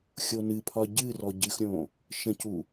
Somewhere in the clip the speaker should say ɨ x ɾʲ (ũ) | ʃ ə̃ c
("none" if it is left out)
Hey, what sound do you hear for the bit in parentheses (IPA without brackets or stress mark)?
õ